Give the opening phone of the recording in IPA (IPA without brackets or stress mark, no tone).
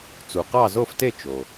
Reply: t͡s